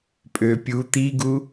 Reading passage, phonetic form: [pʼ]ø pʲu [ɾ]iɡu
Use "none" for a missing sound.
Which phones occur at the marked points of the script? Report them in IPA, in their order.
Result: pʼ, t̪

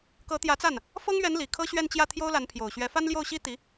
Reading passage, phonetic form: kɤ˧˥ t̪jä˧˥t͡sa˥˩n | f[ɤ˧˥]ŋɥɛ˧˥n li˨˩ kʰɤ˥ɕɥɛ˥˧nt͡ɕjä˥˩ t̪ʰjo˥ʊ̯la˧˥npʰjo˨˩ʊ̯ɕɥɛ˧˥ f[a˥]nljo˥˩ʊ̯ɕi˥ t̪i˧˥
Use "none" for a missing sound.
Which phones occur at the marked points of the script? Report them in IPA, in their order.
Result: ɤ˥, a˥

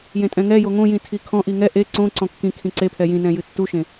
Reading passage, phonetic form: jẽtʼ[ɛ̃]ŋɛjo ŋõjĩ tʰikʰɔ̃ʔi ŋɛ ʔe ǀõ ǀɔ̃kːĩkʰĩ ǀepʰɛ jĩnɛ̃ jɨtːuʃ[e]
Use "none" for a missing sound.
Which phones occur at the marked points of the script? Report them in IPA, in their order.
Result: ɛ̃, ẽ

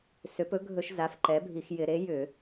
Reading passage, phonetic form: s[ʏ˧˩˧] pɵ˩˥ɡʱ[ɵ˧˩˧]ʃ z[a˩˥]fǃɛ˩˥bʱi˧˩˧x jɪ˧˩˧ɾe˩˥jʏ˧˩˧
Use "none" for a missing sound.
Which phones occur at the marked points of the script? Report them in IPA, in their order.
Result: ʏ˩˥, ɵ˧˩˧, a˩˥

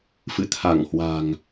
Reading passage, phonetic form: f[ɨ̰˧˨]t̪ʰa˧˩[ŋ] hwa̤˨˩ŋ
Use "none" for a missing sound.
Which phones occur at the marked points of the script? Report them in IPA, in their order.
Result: ɨ̰˧˨, ŋ

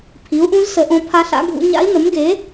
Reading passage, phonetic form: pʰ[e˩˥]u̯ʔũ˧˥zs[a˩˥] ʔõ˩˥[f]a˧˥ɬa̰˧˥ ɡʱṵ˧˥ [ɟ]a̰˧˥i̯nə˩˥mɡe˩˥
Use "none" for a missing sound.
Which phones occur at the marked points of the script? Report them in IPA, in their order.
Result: i˩˥, ə˩˥, pʰ, ɲ

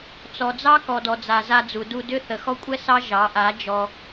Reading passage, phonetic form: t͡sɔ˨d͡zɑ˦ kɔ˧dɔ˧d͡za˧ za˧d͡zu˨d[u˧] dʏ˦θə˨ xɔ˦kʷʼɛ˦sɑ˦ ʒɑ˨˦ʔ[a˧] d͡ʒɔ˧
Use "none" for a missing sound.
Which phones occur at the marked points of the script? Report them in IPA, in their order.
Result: u˧, a˨˦

